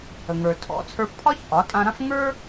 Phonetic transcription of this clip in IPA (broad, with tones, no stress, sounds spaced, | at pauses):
ə˩ ŋ ə˞˩ tʰ ɔ̰˩˥ t͡sʰ ə˞˧ f pʰ ɒ˥ ç ʔ ɒ˩˥ tʼ ã˧ ɾ ã˥ f ŋ ə˞˥